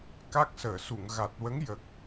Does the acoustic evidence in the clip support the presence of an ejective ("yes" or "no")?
no